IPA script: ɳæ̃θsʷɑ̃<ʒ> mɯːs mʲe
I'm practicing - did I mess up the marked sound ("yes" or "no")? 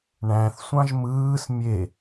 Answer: no